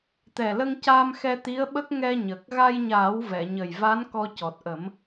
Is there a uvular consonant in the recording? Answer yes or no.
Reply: no